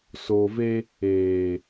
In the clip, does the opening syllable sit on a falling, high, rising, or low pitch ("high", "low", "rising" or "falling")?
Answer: low